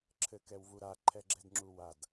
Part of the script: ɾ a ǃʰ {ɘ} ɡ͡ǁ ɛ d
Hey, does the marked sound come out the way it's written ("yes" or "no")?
no